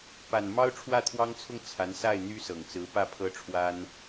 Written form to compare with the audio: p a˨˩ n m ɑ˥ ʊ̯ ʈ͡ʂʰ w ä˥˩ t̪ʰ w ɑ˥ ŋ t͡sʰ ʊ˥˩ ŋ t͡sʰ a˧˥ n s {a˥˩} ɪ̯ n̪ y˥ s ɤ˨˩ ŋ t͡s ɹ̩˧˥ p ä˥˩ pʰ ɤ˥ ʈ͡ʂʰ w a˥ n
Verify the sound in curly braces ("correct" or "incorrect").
correct